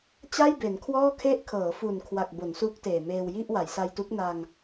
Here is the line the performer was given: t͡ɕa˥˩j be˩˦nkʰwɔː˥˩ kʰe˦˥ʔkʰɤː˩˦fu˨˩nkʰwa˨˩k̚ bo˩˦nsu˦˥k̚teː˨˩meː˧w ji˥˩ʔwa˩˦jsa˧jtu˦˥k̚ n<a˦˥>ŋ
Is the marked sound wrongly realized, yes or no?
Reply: yes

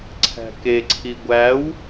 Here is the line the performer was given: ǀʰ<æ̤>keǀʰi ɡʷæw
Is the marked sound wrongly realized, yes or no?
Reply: no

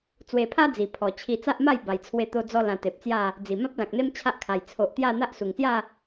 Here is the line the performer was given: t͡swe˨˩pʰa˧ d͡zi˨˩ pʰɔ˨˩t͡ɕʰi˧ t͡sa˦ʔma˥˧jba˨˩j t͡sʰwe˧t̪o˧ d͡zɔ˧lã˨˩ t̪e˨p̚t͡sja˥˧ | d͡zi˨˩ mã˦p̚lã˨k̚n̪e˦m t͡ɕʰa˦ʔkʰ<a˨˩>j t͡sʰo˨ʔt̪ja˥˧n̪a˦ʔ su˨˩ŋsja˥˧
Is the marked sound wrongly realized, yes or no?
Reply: no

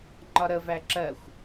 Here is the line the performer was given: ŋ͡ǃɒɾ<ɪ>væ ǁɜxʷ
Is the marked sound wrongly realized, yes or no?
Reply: yes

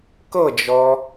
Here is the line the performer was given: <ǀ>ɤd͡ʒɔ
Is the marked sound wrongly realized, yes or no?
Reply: yes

